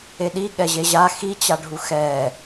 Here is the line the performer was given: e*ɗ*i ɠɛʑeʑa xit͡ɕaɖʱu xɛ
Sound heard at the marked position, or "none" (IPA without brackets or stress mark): ɗ